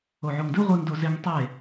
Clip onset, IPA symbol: o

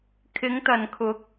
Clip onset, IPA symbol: kʰ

